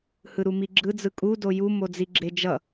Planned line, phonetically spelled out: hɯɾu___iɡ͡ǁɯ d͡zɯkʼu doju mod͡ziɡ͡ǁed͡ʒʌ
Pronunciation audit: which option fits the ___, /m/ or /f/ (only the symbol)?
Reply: m